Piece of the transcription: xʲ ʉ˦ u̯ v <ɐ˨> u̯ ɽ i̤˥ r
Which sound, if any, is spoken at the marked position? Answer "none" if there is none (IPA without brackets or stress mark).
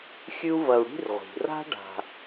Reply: ɐ˨